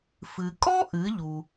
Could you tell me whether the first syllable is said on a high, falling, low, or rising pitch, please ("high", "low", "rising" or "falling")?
low